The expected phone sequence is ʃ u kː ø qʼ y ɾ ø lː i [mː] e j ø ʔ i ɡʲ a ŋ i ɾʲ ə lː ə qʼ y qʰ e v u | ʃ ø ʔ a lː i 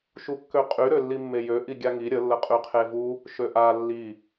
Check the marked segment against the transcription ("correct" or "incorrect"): correct